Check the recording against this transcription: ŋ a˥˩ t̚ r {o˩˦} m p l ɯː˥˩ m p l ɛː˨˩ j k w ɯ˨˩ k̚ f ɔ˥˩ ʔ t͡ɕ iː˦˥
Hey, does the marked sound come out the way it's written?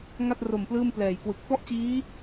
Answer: no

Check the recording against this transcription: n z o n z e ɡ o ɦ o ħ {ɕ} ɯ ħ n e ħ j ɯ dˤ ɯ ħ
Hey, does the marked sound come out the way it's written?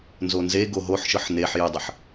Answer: no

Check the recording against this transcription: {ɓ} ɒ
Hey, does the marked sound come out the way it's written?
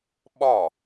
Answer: yes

